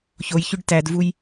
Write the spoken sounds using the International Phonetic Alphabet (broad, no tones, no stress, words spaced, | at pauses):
çojçʉɖ tædvuj